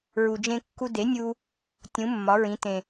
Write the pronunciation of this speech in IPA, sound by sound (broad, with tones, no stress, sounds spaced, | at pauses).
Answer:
ɹ u˩ d͡ʒ ẽ˧ kː u˧ d e˩˥ nʲ u˧ | tʲ ũ˩˥ mː ɒ˩˥ ɹ ĩ˩˥ t ẽ˩